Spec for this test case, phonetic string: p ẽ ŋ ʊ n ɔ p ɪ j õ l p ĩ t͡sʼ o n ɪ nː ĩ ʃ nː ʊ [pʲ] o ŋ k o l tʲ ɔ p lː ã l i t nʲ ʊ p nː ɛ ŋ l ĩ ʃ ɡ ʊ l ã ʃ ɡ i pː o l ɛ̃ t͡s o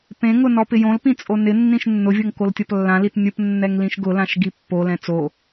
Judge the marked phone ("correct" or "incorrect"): incorrect